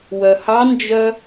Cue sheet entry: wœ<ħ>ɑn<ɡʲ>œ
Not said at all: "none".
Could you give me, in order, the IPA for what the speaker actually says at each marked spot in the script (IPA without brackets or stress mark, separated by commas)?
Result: h, d͡ʒ